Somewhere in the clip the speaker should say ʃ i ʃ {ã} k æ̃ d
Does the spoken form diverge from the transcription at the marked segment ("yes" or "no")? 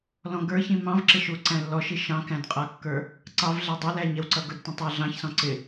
yes